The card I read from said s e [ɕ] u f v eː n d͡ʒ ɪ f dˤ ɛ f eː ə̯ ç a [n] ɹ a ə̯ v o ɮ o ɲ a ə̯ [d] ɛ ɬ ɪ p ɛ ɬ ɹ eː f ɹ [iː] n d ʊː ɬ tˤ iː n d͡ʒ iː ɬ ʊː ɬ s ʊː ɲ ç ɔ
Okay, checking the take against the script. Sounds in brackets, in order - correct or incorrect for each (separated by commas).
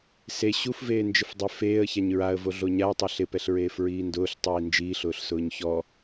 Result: correct, incorrect, incorrect, correct